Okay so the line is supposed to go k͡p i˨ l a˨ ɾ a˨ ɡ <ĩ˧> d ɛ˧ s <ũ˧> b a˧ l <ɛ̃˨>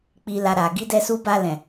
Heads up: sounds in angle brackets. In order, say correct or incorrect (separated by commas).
incorrect, incorrect, correct